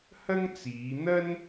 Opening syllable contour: high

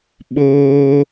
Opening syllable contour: high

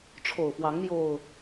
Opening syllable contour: low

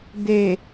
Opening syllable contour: low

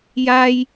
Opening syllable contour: high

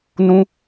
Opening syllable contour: high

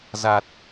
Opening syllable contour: low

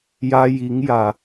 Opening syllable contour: high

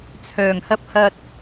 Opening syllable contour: low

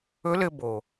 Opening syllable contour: rising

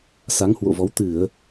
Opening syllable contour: rising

